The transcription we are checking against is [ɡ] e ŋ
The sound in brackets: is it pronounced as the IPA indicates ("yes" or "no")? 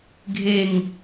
no